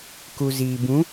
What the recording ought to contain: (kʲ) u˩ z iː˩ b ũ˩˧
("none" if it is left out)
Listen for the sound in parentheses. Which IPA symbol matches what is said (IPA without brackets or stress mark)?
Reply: k